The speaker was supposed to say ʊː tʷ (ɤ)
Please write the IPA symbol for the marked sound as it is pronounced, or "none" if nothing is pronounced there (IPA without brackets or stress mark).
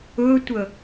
ɤ